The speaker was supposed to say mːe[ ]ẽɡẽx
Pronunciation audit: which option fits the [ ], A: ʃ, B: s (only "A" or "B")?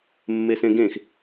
B